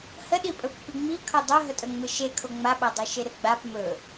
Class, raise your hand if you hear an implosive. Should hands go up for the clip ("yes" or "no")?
yes